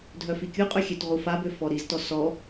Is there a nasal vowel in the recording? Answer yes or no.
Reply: no